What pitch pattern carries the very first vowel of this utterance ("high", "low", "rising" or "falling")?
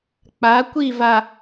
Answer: rising